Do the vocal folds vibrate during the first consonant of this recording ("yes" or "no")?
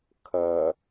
no